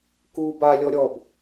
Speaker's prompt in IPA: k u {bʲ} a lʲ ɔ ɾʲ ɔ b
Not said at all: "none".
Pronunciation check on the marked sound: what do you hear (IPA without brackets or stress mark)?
b